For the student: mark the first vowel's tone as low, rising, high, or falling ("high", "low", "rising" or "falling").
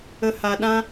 low